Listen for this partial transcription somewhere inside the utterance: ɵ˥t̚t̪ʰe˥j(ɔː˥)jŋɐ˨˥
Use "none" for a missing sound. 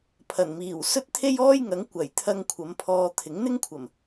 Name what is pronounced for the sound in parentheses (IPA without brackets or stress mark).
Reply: ɔː˥